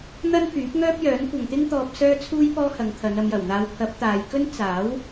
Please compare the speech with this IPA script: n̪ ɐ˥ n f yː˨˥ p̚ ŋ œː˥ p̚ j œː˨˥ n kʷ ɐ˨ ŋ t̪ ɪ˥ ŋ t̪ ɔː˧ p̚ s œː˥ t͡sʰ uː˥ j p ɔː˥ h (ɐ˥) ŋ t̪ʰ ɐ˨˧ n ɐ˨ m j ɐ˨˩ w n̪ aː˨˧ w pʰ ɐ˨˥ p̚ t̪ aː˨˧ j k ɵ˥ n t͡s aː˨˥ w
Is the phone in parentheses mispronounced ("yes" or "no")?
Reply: yes